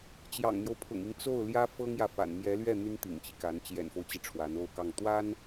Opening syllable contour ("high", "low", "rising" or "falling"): low